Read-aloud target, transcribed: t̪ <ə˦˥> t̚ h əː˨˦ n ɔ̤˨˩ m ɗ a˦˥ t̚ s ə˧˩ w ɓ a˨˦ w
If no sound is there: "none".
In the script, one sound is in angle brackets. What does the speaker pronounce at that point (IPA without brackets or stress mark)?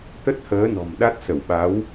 ə˦˥